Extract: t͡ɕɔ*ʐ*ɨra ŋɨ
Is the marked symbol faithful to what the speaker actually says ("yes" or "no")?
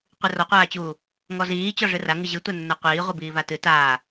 yes